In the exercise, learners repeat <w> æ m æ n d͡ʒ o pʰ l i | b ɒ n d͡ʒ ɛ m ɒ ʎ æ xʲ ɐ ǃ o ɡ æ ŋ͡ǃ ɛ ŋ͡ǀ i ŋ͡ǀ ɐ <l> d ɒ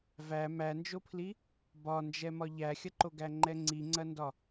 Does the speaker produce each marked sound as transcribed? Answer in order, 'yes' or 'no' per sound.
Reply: no, no

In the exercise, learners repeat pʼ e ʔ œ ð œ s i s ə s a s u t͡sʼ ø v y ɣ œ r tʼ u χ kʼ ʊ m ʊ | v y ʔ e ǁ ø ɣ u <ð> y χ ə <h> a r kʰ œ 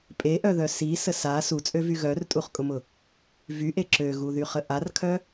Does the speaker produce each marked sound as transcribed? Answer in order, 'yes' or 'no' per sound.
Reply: yes, no

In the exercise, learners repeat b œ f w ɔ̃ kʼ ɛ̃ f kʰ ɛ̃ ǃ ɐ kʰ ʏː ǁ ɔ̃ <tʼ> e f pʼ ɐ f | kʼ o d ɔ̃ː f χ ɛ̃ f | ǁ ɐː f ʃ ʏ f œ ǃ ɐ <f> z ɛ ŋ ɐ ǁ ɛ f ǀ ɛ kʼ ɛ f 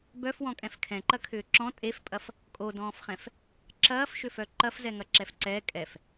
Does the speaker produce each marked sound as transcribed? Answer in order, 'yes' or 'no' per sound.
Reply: yes, yes

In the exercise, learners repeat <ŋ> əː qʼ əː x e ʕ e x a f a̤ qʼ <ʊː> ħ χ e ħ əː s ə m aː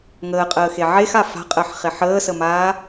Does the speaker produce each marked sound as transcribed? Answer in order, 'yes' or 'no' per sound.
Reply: yes, no

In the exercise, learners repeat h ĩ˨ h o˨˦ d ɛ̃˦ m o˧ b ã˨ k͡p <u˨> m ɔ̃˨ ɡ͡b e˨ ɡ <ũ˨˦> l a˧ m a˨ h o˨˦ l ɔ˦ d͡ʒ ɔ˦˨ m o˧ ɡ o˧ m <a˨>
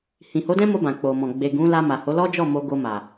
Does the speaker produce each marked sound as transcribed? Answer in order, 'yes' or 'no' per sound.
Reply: no, yes, yes

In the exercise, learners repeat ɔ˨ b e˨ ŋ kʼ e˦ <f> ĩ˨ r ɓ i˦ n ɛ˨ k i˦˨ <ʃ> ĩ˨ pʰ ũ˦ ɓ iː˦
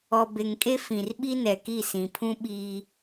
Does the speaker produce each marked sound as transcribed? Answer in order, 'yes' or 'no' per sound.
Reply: yes, no

